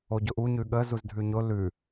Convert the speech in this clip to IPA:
oɟʊʔu ɲʉɠə zuzdʱʉɲʊ lʉ

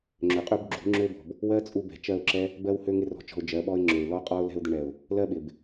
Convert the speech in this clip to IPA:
ŋ͡ǁø˨qʼø˦b ɡ͡ǁṳ˨˦ŋ͡ǁø˦bɔ̤˨b | wɜ˦t͡sʼu˧ bɛ̤˨ t͡ʃɜ˦˨ʊ̯ǁɛ˦ | bɜ˦whø˦ ŋɪ˦rɔ̤˧t͡ʃɔ̤˧ʊ̯ d͡ʒɜ˨˦ɓɔ˦ɪ̯ŋ͡ǁø˨ɪ̯ lɔ˦qʼɔ˦ʊ̯ lɛ̤˧ʊ̯d̪ɪ˧ɳɛ˨ʊ̯ | lɜ˦ɓɪ˨b

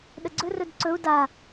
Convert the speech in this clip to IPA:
ɗəɡ͡ǀɵrɵd ǀɵu̯ da

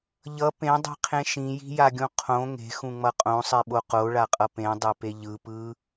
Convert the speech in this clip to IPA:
ʎʌ pẽdˤi̤qʰẽ ʃĩji̤jaɡʲũ qʰõ ŋe̤xũŋ͡mʌ qʼõsˤeɓo qoɭaqʼʌ pẽdˤepe ʎɯpɯ

